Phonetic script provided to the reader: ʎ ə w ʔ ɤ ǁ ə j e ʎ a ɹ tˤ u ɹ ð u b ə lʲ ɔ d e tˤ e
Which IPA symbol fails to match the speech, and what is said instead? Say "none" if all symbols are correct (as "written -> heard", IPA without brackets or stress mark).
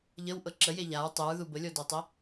none